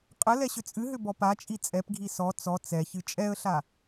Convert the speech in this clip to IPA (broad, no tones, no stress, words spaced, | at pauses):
qʼə lɛɕʏt͡sʼɨɦʏ bɔpat͡ʃʼi t͡sʼɛpɡʱi sɔ t͡sɔ t͡sɛçɨ t͡ʃʼɛə̯ɬa